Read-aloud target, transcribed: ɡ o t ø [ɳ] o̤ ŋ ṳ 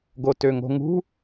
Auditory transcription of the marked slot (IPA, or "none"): ŋ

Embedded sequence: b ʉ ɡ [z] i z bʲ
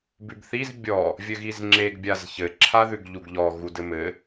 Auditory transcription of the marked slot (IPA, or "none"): θ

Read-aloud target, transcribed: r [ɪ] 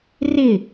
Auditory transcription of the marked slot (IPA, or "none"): ɪ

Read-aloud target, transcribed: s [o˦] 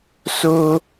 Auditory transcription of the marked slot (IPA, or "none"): o˦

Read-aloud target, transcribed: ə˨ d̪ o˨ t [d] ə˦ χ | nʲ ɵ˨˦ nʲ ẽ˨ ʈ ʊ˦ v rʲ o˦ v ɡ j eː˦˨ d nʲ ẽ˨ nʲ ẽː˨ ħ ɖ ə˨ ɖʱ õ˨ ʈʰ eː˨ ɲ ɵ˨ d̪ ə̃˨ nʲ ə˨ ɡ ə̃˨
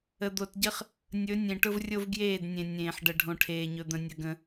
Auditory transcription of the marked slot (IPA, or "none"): ɟ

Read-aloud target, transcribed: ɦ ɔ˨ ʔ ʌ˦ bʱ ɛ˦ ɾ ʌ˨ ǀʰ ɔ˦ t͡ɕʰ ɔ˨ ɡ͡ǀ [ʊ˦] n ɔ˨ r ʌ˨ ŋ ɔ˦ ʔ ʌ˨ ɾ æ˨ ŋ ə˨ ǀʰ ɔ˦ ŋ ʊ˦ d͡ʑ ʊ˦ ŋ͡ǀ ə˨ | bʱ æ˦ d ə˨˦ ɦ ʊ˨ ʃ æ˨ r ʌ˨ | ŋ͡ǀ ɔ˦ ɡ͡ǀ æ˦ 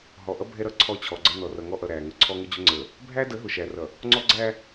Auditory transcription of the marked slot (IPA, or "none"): ə˦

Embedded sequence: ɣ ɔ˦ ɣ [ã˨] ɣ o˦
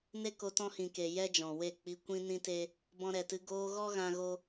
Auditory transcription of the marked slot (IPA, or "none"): ã˧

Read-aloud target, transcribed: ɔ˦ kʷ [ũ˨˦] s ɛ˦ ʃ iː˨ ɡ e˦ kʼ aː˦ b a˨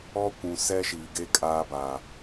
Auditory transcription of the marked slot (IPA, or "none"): ũ˨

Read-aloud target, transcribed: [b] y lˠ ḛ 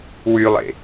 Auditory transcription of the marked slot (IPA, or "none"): w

